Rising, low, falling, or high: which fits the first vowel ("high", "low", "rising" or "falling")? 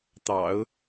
low